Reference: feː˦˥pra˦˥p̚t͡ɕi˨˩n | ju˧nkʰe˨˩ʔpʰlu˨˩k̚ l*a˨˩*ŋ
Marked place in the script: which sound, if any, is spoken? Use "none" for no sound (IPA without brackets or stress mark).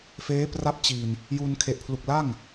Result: a˥˩